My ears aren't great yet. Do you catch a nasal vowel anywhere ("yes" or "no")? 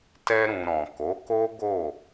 yes